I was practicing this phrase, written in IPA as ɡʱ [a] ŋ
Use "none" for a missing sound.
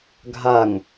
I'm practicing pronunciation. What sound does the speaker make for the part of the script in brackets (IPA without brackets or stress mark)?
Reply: a